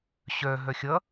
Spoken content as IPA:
ɕœ ɦœxʲʌ

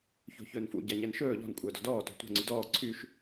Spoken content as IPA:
ço̤çɵːnfṵ ɟæɲɛnʃɵː ʎɔ̤n kʷʼœːdɔ̤dɔː to̤tʷɛ̤ ŋ͡ǀydɔː ǀʰyʃ

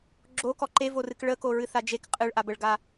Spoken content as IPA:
ɡ͡ǁokɔ ǃevorɨk ɭəkoɹɨθa d͡ʒek qʼɨɭʔa bəɭɡa

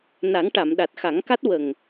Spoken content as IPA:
na˨˩˦ŋʈa˨˩˨m ɗa˨˩t̚xa˨˩˦ŋka˦˥t̚ wə˨˩ŋ

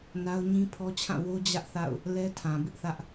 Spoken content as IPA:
na˦ʊ̯ɲĩ˦pʰɔ˦t͡ɕʰã˦˨ wo˦d͡ʑä˦ʔ θa̰˦˨ʊ̯ | lɛ˦tʰã˨bɪ˦ʔθä˦ʔ

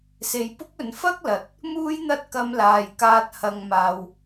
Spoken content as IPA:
se˨jpʊ˥k̚ɵ˨˧n fɐ˥k̚lɐ˨˥t̚ | muː˥jn̪ɐ˥t̚ kɐ˧mlaː˨jkaː˧t̚ hɐ˧ŋmaː˧w

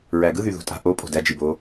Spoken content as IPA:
ɹæɡɯ ðyðo̤tʼa̤ ʔo pʼo̤dæ d͡ʒibo

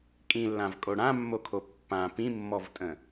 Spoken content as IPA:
kʼĩlːãvkʼo ɽãmːokʰo pːã pĩmːɔvtʼə̃

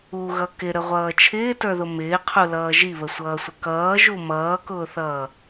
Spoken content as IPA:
uɣʌ kɪɾəʁʷʌː t͡ʃʰɪːtə˞ðʊ mɪːqʰulʌː ʒiβəsʷʌːsʷə kʌːʒu mʌːkʊːθʌː

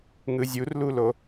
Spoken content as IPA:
ŋɯzʲurlulo

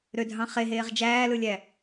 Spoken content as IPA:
ɾødʱɑ̃ χeɦeːʁ d͡ʒæːlɯlʲæ

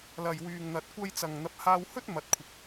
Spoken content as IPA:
lɐ˨jwyː˨ŋ n̪ɐ˧t̚kʷɐ˥j t͡sɐ˨ŋ n̪ɐ˨˥p̚haː˧whɵ˥t̚ mɐ˨˥t̚kʷʰɪ˨˥k̚

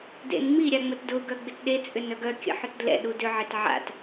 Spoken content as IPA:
dḛnŋ͡mi ɾʲaŋ͡mətdʊ ɡœɡ͡bɪtɗe t͡sʼʏnœɡœ kʲə̰ħʏtdlɛ̰ ɗudʏ ʕɪtʕa̰t

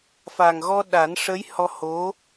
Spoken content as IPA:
fa˨˩ŋɣɔ˧ ɗa˨˩˦nʂə˧˥j hɔ˧ho˧˥

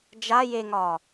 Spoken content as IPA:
d͡ʒa jeŋɒː

